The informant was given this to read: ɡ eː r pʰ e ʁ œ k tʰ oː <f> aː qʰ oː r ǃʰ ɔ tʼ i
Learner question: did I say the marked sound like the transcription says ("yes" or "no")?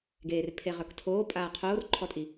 no